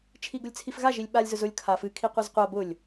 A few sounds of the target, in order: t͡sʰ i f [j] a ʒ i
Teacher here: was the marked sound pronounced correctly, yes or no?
no